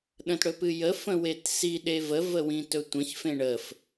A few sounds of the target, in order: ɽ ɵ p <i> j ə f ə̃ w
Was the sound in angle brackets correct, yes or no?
no